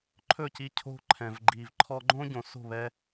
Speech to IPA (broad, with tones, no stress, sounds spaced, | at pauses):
ǃʰ ɵ˦˨ c i˧ cʰ o̤˧ ǃʰ ɛ̃˨ v ɡ͡ǃ i˨ v ǃʰ ɔ˧ ɡ͡ǃ õ˦ ɟ õ˨ s o̤˦˨ β ɛ˧